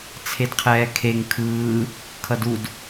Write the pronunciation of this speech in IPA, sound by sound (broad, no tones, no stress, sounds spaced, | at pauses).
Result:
t͡sʰ e d qʰ ɛː kʰ e ŋ kʰ ɯː | kʰ ʌ d u d